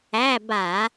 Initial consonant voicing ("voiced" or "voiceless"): voiced